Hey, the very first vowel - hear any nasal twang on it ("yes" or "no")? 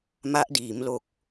no